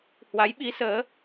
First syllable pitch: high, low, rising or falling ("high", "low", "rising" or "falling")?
rising